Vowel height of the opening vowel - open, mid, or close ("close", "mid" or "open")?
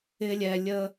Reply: close